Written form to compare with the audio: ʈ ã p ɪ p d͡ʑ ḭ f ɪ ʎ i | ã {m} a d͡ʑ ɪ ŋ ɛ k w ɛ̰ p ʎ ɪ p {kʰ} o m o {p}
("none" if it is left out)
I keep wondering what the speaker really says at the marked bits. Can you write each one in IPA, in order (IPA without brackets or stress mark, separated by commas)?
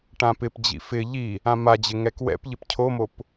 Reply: m, cʰ, p